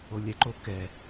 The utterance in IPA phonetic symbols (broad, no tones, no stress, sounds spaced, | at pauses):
o lʲ ɛ ǃ o k ɛ